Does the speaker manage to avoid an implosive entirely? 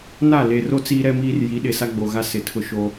no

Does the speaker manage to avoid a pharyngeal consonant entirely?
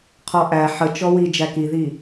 no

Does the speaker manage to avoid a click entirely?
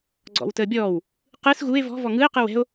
no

